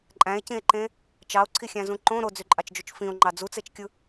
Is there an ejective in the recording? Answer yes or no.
yes